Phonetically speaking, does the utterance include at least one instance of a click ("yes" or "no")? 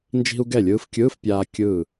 no